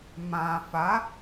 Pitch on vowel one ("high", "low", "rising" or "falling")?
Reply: low